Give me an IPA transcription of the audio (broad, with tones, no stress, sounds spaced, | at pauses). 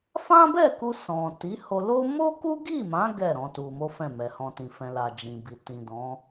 f ã˦ b ɛ˦˨ k u˧ s ɔ̃˨ t i˨˦ h o˧ l o˦ m o˦ k u˦ ɡ i˦˨ m ã˨˦ ɡ ɛ˦˨ ɾ ɔ̃˨˦ t u˧ m o˦ f ɛ̃˦˨ m ɛ˨ h ɔ̃˧ t ĩ˨ f ɛ̃˧ l a˨ d͡ʒ ĩ˨ b i˨ t ĩ˨ d ɔ̃˨˦